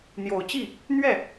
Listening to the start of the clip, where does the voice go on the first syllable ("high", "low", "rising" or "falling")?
low